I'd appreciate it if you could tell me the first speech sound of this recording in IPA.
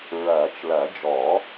ɹ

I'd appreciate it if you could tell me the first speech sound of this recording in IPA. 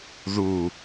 ð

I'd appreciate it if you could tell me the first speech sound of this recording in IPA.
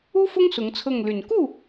u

